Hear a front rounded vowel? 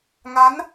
no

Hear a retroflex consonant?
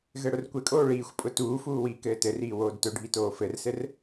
yes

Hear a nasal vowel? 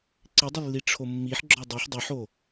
no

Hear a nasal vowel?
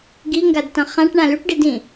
yes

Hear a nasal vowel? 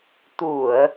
no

